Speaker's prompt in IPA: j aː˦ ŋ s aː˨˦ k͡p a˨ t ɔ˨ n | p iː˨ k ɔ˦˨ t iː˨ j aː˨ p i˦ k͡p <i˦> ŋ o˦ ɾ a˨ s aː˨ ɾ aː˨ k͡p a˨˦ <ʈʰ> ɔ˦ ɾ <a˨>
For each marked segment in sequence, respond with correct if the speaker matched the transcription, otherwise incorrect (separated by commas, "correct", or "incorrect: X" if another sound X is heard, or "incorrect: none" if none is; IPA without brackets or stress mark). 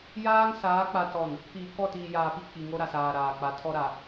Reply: incorrect: i˨, incorrect: tʰ, correct